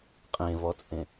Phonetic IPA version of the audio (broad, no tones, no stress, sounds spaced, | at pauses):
qʼ ẽ v ɔ t͡sʼ ẽ